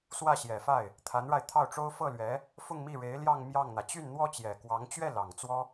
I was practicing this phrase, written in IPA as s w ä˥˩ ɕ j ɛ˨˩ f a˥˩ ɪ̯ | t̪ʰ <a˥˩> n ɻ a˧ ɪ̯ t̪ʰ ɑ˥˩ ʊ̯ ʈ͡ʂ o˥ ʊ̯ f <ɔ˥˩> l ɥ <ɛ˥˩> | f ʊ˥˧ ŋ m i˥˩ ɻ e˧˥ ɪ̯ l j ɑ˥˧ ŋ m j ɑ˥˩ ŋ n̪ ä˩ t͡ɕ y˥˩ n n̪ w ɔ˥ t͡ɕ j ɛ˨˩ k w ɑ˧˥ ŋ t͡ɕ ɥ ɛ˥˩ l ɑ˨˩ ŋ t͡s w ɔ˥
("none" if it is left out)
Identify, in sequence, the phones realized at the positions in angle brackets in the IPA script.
a˧˥, ɤ˥˩, ɛ˧˥

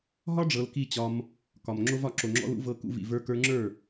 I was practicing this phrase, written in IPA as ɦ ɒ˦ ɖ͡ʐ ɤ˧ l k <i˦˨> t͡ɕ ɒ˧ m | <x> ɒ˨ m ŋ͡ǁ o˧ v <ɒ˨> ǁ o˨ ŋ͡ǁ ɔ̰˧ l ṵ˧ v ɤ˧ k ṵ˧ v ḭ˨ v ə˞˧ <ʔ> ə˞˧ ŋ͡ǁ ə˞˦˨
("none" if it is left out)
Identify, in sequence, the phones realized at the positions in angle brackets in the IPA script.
i˦˨, k, ɒ˨, k

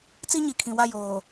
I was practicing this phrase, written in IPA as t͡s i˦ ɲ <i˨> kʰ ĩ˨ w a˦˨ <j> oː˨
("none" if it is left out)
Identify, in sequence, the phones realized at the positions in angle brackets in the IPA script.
i˨, j

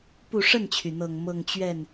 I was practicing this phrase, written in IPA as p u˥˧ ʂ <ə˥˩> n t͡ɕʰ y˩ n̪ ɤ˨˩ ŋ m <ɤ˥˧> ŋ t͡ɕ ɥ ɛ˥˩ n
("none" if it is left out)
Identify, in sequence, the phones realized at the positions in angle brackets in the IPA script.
ə˥˩, ɤ˥˧

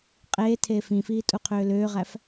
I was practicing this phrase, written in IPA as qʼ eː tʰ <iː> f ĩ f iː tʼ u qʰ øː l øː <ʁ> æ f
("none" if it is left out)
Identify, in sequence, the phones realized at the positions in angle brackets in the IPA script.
eː, ʁ

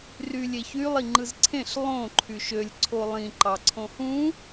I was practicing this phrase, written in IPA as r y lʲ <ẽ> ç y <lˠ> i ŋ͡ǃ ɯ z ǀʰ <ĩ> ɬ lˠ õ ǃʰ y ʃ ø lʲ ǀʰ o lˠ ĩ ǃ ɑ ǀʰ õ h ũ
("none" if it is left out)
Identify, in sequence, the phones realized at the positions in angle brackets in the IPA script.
e, lˠ, ẽ

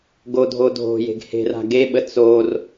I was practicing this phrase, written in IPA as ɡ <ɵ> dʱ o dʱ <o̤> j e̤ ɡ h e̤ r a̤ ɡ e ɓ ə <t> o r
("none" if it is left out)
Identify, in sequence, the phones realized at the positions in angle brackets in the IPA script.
o, o̤, t͡s

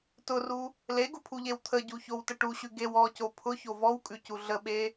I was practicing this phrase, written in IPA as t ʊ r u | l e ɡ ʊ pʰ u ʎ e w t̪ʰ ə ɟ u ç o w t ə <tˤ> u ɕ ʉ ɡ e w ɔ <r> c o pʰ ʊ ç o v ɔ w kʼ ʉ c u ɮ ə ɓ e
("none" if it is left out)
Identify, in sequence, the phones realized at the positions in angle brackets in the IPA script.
ʈ, none

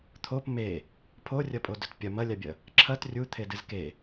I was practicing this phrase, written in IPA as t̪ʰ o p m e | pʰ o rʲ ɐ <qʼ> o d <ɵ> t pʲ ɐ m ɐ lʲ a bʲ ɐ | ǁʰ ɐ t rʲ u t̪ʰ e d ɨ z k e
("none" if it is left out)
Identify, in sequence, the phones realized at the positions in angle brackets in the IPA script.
pʼ, ɵ

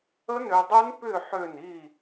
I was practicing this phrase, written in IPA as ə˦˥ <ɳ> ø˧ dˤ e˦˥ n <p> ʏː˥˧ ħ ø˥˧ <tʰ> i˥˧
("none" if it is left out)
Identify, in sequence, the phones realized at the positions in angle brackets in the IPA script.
n, p, n

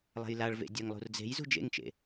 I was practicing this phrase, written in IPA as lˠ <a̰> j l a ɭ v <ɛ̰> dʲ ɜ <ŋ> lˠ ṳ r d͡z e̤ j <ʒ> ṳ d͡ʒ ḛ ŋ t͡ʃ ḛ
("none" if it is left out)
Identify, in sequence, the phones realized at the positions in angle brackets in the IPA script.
a̤, ḛ, ŋ, z

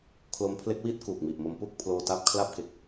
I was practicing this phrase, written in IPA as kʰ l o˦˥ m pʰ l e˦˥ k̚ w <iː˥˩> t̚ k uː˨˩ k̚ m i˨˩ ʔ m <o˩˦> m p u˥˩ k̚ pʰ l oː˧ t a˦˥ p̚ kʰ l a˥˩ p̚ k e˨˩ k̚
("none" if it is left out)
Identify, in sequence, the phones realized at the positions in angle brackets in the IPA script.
iː˦˥, o˧

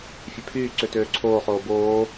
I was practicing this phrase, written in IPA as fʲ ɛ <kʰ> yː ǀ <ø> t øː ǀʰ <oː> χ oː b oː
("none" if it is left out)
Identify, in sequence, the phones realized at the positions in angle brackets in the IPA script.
pʰ, ø, oː

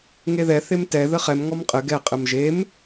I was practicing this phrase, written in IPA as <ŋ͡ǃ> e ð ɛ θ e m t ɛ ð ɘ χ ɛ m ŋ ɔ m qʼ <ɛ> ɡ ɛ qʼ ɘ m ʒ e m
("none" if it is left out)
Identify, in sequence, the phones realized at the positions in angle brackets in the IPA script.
ŋ, ɘ

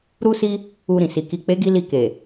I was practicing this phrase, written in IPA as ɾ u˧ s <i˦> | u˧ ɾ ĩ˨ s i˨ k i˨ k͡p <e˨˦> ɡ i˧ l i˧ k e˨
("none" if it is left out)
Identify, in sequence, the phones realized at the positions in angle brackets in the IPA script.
i˧, e˨˦

